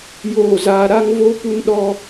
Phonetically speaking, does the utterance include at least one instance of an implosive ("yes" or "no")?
yes